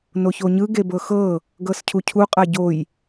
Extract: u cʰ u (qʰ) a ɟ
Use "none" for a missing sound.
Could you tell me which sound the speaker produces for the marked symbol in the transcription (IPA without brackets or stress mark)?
qʼ